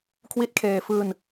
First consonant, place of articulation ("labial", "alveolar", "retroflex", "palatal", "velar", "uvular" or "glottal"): velar